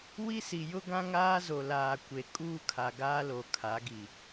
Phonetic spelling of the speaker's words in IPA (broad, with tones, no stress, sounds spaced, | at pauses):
w i˦ s i˨ j ʊ˦ ɡ ã˦ ŋ aː˦ z o˨ l aː˨ kʷ e˨ kʼ uː˦ kʰ a˨ ɡ aː˦ l o˨ kʰ a˨˦ ɡ i˨